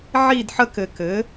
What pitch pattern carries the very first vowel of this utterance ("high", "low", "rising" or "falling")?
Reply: falling